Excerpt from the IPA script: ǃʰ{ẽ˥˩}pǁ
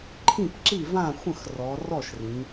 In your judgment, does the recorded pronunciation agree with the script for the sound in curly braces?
no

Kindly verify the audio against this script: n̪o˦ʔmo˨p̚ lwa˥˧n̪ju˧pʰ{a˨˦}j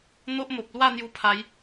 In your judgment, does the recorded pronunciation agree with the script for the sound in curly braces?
yes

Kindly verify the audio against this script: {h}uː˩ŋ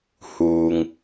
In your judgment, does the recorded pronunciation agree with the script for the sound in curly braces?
yes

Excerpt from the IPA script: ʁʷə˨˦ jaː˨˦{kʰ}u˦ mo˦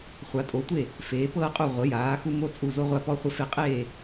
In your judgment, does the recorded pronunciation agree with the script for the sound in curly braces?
no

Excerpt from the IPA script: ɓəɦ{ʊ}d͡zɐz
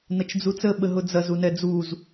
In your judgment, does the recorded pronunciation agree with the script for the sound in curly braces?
yes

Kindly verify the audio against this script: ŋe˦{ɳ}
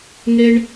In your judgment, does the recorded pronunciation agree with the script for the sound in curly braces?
yes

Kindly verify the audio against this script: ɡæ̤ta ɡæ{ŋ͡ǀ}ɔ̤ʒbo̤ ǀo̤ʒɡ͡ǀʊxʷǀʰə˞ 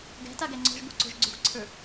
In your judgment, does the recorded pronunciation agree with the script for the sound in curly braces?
yes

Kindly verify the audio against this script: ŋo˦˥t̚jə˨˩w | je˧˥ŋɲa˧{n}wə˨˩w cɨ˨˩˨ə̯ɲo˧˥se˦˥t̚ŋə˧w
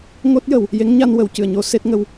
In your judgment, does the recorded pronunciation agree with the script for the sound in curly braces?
yes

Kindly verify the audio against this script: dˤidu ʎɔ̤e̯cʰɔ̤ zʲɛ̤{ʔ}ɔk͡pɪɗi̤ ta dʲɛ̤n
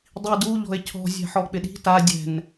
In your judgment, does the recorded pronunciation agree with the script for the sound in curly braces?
no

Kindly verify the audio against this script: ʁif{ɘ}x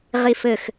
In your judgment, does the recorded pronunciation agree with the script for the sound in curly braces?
yes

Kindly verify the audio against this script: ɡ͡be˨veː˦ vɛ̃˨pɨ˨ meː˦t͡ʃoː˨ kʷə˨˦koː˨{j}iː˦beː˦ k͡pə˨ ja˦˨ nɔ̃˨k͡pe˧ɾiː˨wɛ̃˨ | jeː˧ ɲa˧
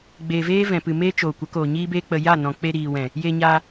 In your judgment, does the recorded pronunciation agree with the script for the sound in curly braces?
no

